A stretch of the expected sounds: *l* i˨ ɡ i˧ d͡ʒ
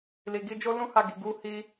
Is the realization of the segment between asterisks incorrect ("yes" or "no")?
no